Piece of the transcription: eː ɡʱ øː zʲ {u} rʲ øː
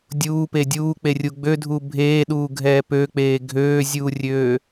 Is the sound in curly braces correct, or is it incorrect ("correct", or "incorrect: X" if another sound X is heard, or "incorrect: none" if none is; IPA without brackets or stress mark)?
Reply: incorrect: uː